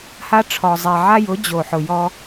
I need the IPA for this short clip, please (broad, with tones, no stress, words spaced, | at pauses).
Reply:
ha˦ʈ͡ʂʰɔ˨zˤɛ˨ ʕa˦jʊ˨˦ d͡ʑo˨ħʊ˨jɔ˦